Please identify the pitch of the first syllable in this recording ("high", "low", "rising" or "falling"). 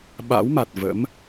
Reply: rising